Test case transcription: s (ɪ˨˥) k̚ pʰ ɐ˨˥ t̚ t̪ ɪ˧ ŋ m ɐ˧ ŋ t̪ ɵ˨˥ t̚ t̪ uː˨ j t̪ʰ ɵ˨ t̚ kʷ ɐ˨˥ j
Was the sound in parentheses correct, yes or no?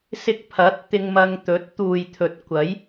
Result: no